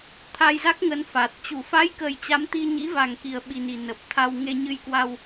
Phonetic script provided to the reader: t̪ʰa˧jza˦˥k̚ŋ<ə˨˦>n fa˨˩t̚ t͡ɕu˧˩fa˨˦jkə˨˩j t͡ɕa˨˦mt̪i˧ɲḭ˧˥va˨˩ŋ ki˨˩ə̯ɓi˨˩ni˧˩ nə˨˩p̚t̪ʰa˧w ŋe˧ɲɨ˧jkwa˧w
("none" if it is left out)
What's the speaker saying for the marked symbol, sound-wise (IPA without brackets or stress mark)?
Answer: ə˨˦